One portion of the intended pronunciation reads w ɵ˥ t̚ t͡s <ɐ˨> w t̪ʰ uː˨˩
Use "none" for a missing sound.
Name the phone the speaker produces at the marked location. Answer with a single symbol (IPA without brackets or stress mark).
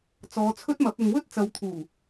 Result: ɐ˨